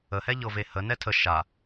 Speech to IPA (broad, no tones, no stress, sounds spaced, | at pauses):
ə h ɛ ʎ ɤ v e h ə n ɛ tʰ ə ʃ a